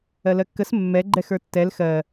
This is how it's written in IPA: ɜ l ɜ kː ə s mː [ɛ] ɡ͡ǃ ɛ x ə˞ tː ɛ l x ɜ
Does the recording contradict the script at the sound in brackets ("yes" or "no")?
no